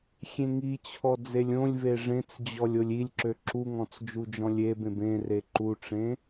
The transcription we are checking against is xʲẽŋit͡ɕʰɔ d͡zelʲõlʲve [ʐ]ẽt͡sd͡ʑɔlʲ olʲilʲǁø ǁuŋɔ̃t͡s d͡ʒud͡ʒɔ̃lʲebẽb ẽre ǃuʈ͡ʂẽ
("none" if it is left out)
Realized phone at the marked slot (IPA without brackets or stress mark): ʐ